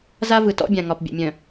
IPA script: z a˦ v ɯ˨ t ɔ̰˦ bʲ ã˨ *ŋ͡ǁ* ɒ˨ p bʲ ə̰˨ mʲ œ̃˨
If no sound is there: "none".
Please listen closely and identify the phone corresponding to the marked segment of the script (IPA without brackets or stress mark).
ŋ